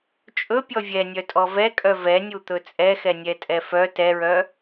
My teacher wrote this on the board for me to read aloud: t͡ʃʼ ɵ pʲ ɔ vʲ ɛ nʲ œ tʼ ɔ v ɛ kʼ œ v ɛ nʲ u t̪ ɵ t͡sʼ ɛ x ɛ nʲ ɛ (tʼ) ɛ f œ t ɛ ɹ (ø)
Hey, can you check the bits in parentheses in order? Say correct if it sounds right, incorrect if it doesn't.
correct, incorrect: œ

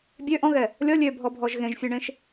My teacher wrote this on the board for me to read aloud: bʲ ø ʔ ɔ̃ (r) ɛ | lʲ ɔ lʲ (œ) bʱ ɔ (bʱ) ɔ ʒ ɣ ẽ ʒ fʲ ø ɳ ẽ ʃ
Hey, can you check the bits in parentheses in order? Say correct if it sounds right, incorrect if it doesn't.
incorrect: ɣ, incorrect: ø, correct

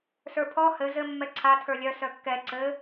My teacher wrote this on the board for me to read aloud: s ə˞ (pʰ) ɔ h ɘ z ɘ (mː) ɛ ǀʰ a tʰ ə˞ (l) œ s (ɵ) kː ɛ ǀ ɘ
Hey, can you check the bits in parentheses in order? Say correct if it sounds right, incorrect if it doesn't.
correct, correct, incorrect: lʲ, incorrect: œ

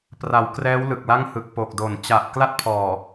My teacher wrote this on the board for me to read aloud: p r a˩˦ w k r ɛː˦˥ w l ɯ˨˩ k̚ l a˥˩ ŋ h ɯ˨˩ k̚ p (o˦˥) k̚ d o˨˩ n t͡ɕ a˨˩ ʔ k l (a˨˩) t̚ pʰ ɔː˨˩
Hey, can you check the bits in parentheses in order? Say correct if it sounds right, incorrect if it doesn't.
incorrect: o˨˩, incorrect: a˥˩

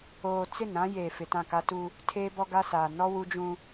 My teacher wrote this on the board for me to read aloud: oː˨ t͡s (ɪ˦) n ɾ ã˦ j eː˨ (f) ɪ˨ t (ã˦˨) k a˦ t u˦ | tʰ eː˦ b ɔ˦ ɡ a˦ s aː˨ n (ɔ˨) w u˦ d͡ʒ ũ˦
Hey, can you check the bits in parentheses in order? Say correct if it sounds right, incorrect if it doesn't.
incorrect: ɪ˦˨, correct, correct, incorrect: ɔ˦

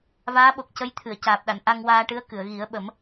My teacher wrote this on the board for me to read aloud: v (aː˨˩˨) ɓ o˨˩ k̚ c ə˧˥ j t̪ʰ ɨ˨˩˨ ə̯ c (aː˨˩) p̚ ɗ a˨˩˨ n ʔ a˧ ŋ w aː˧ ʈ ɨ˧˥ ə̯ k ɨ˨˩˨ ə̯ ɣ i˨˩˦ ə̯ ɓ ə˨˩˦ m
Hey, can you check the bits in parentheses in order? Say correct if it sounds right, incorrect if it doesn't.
incorrect: aː˧˥, correct

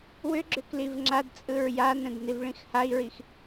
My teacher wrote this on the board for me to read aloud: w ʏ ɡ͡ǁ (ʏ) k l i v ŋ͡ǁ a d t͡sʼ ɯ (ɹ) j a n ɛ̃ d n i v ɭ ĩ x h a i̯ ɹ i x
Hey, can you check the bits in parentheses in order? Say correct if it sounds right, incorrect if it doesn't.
correct, correct

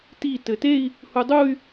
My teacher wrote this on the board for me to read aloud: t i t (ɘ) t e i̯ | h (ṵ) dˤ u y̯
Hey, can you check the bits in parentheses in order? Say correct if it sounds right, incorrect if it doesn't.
correct, incorrect: u

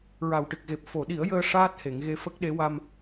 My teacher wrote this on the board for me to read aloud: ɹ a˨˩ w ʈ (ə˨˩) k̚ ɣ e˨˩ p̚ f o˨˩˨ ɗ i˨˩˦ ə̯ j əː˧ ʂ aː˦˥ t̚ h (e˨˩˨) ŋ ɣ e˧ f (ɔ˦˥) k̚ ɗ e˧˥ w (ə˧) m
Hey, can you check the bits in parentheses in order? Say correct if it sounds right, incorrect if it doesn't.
incorrect: ɨ˨˩, correct, incorrect: ə˦˥, incorrect: a˧

